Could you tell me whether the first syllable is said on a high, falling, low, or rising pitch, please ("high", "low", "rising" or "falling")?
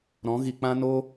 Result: rising